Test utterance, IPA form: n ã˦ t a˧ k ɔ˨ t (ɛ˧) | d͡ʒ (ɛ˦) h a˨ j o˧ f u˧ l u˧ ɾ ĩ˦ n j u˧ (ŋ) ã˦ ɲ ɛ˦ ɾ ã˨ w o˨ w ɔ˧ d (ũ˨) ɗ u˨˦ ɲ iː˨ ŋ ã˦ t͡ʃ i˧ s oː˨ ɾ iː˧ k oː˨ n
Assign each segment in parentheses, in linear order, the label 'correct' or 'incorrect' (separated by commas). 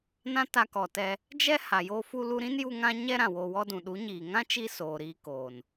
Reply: correct, correct, correct, correct